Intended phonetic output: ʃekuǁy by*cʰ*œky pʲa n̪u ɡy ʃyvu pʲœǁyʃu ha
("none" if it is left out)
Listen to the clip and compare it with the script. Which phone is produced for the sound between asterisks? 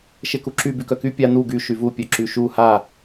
k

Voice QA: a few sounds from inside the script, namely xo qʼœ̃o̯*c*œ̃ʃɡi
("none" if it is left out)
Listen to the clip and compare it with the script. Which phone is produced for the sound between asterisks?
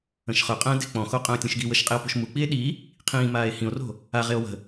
tʲ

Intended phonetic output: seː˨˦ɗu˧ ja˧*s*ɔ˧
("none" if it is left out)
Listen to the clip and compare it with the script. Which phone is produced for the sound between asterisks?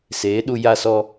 s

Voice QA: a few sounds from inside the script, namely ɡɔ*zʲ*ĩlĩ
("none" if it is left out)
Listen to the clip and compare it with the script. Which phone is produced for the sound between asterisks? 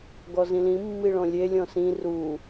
z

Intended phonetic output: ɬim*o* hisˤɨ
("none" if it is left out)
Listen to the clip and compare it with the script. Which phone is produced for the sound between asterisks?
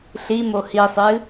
o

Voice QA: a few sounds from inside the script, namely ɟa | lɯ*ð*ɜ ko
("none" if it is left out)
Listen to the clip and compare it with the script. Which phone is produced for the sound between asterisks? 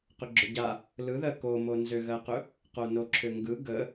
ð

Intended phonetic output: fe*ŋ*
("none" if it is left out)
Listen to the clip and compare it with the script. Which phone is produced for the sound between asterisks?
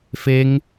ŋ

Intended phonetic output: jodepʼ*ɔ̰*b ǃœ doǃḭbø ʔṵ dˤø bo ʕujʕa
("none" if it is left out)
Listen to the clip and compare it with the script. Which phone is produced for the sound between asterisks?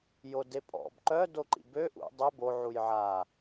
ɔ̰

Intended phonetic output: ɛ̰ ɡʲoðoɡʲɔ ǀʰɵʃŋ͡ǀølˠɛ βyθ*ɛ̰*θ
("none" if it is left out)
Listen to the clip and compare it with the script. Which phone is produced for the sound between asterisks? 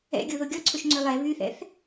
ɛ̰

